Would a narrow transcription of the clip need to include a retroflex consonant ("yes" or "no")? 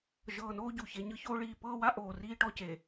yes